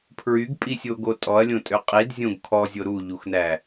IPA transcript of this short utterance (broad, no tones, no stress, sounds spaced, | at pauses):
pʰ ɹ y ɡ pʼ i sʲ o ɡ o tʼ ɔ ɐ̯ lʲ õ tʼ ø qʼ i d zʲ õ ɡ kʰ ɔ zʲ o ɾ u ʎ u x n æ